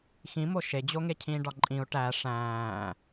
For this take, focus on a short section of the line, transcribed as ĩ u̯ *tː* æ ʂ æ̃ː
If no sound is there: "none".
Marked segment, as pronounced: ʈ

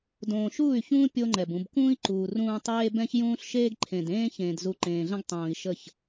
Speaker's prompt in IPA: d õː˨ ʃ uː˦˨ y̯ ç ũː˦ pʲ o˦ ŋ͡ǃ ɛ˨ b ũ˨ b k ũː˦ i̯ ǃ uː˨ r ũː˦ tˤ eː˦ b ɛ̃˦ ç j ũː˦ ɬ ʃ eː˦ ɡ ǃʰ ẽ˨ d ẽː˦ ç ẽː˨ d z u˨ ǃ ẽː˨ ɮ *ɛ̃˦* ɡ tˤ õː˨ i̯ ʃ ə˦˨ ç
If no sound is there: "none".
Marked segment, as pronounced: ə̃˦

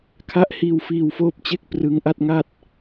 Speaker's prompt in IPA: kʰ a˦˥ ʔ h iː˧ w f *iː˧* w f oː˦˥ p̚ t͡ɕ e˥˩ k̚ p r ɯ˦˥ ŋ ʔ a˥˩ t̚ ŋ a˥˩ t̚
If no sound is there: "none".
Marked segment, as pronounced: iː˧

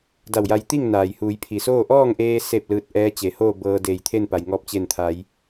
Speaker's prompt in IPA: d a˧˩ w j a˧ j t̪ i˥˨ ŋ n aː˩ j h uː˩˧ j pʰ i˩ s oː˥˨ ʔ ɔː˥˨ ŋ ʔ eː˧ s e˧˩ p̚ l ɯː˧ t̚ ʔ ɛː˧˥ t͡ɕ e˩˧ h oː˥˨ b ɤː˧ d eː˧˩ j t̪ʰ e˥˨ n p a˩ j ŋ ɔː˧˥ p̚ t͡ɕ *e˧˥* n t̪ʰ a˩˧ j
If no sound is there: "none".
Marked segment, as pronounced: e˧˩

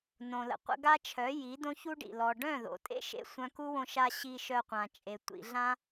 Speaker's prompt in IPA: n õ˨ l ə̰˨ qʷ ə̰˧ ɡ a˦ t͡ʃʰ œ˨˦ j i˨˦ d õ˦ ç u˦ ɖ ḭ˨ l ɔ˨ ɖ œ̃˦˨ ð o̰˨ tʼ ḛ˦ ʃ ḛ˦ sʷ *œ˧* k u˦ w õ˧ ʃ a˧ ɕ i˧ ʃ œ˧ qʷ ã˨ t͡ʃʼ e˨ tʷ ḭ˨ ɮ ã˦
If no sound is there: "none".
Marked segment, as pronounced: œ̃˧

